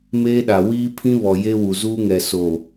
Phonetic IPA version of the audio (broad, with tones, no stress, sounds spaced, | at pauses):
m eː˦ ɗ a˨ w iː˦ pʰ ĩ˦ β ɔ˨ j e˦ w u˨ z uː˦ ŋ ɛ˨ s o˨